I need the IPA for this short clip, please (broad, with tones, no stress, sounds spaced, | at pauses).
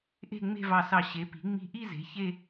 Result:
ʔ e̤˥˧ ŋ͡m e̤˥˧ v ɑ˧˩ s ɑ˧˩ ɕ e˩˧ p i̤˩˧ ŋ͡m i̤˧ ʔ i˥˧ z e̤˩˧ ç e˥˧